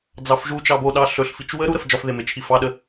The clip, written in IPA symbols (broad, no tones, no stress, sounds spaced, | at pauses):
d͡z ɑ f ʒ u t͡ʃ ɑ b o ɗ ɑ ɬ ɵ ɬ f i t͡ʃ w ə ɾ u ɾ ə f d͡ʒ ɒ f ð e m e t͡ʃʰ i f ɑ ɗ ə